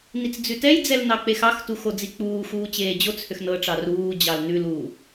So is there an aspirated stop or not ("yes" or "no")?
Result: no